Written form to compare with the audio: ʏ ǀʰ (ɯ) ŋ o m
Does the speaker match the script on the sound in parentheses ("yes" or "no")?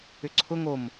no